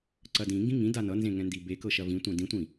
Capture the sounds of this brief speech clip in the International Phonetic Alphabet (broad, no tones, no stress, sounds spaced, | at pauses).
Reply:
ǀ ɐ d ĩ ŋ ɡ ĩ ŋ ĩ d a n ʌ n z ẽ ŋ ɛ̃ n d i b e k ɤ ʃ ɐ v ĩ tʷ ɛ̃ d ĩ tʷ ĩ